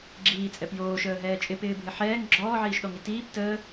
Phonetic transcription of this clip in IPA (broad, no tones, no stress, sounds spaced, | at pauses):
ɡ͡ǁ iː t͡sʼ ɛ p j oː ʃ əː ɦ ɛː t͡ʃʼ ɪ p ɪː bʱ ɪ ħ ɛː ŋ ɡ͡ǁ ɔː ʕ iː ʃ ɗ ɔ ŋ i t iː p t əː